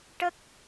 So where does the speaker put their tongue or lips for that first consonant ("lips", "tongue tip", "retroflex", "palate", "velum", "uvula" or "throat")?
retroflex